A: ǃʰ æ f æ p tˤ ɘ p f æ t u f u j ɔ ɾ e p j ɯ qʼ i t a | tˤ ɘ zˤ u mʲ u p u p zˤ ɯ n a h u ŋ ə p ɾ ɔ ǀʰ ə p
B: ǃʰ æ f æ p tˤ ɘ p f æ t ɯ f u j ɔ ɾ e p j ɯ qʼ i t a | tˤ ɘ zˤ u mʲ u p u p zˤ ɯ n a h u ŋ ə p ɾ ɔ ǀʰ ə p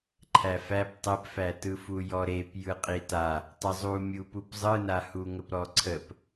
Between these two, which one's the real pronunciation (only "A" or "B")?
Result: B